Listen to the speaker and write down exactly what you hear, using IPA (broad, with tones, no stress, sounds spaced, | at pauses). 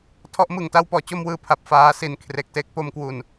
tʰ ɔ˦˥ ʔ m ɯ˨˩ ŋ t a˥˩ w p ɔː˩˦ t͡ɕ o˥˩ m w ɯː˧ pʰ a˨˩ p̚ f aː˧ s i˨˩ n kʰ r e˨˩ k̚ t e˦˥ k̚ p o˧ m k w u˨˩ n